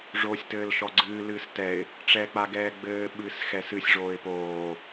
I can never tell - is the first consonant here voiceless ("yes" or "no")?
no